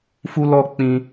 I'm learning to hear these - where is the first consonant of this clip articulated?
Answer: lips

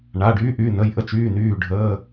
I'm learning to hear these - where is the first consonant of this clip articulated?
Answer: retroflex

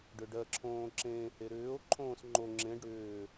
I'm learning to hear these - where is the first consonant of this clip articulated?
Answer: retroflex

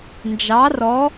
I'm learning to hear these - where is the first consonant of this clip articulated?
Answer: tongue tip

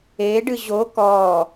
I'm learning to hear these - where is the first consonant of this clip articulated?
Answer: retroflex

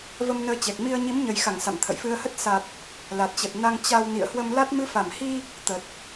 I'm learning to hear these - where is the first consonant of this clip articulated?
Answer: lips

